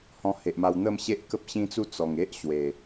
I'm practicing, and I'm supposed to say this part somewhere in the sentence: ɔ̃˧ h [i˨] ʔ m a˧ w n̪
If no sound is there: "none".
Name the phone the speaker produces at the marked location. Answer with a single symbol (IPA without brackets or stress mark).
e˨